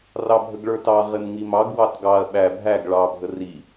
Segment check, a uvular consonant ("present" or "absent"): present